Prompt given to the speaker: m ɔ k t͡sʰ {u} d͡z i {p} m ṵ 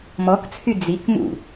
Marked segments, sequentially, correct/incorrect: incorrect: y, incorrect: k

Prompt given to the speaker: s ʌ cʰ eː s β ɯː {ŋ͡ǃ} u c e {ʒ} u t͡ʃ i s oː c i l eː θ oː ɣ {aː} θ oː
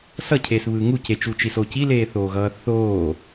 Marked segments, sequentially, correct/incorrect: incorrect: ŋ, incorrect: t͡ʃ, incorrect: ʌː

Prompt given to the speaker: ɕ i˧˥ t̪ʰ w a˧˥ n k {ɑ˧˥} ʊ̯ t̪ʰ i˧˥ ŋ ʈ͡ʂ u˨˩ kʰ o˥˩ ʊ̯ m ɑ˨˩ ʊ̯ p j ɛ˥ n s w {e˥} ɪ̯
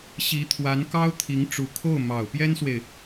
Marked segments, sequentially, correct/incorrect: incorrect: ɑ˥, incorrect: e˨

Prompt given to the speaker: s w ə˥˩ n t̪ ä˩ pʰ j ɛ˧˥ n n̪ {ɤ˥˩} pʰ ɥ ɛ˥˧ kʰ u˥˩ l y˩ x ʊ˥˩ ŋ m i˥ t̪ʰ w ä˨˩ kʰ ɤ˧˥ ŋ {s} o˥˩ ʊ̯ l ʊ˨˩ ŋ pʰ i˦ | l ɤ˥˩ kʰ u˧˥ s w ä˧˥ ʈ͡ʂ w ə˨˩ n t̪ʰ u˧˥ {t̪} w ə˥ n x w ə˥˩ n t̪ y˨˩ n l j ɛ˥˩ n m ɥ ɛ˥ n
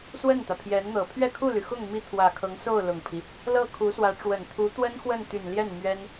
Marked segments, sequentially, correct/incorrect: incorrect: ɤ˨˩, correct, correct

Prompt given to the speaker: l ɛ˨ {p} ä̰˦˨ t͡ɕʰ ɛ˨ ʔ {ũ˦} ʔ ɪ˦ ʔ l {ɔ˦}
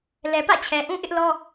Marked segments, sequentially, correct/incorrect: correct, correct, correct

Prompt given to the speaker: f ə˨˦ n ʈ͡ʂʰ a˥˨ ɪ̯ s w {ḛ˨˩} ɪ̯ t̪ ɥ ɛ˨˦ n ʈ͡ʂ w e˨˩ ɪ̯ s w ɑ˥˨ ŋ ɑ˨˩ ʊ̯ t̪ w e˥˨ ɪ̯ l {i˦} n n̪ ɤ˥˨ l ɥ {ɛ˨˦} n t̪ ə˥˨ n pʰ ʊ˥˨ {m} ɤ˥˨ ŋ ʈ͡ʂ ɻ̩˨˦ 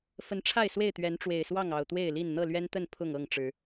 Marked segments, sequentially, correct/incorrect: incorrect: e˥˨, incorrect: i˥˨, incorrect: ɛ˦, incorrect: ŋ

